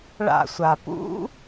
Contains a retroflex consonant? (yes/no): yes